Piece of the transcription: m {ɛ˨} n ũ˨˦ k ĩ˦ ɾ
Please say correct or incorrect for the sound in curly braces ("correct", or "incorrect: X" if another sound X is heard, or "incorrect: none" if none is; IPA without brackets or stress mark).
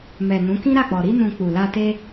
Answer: correct